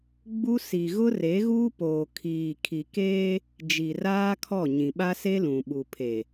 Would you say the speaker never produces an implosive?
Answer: no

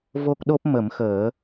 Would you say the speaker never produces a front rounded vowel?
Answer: yes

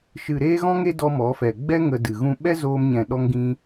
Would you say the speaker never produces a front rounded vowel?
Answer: yes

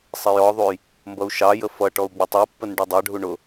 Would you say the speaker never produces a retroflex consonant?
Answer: no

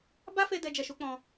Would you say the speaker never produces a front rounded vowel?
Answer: yes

